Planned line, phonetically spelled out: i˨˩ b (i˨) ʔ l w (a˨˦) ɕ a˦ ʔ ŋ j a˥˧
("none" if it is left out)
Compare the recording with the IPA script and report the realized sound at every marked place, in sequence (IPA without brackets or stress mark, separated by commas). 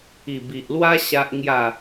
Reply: i˨, a˦